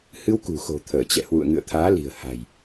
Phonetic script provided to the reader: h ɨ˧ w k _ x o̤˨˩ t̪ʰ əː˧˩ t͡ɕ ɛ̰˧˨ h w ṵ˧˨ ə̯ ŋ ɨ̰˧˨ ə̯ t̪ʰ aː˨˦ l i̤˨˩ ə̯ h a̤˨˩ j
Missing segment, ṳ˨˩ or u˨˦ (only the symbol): ṳ˨˩